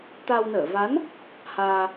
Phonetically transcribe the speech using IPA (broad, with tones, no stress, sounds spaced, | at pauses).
t̪ a˧ w n əː˧˩ v a˨˦ n | h aː˧